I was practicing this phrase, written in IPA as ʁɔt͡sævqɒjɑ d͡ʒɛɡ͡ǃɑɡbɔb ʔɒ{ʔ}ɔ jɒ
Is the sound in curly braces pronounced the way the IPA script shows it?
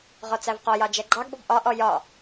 yes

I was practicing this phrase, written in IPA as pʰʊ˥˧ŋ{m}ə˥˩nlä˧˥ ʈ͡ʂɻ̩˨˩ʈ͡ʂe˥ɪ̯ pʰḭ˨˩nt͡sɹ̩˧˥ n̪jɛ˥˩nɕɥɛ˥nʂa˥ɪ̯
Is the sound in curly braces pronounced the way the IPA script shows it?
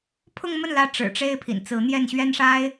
yes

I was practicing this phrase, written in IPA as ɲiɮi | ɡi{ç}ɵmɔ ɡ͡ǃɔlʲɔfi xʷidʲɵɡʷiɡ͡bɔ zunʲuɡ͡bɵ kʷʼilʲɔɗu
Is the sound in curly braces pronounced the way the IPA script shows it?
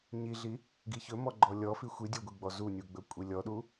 yes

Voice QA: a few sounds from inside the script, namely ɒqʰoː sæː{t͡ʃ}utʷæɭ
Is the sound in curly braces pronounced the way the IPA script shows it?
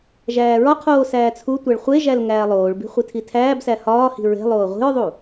no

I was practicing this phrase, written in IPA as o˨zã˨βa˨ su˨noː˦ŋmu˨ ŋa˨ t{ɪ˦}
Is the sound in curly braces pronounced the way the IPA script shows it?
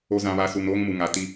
no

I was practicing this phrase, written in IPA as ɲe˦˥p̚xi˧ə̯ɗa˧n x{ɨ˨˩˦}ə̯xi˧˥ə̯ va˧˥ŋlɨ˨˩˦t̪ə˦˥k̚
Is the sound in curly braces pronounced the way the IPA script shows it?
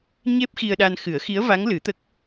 yes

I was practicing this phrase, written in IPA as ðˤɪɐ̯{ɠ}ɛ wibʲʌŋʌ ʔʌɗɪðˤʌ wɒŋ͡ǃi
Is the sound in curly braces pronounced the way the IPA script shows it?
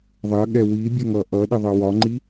yes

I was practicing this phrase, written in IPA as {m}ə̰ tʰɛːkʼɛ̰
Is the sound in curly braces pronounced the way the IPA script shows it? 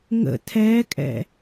no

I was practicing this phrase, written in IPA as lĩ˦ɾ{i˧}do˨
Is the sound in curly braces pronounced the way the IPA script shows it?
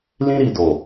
yes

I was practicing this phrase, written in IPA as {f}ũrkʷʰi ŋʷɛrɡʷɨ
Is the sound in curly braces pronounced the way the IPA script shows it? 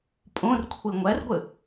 no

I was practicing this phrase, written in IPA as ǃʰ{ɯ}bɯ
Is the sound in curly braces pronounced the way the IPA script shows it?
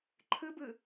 yes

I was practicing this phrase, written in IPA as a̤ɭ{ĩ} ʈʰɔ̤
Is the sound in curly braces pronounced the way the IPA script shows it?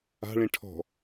yes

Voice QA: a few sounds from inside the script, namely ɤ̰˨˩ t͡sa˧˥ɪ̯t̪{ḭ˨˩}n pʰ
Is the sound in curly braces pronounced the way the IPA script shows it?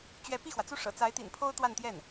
yes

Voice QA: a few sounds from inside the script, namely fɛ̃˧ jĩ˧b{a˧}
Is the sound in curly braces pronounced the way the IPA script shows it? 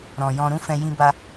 yes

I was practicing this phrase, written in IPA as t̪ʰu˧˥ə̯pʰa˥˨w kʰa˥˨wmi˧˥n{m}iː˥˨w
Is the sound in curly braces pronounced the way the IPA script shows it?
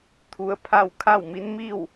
yes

